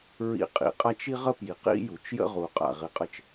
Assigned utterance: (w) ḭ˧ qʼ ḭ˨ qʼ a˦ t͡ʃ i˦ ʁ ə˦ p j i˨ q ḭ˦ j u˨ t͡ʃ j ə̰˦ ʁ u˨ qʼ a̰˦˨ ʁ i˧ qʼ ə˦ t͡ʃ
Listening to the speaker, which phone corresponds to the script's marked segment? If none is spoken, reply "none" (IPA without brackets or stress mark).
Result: ɹ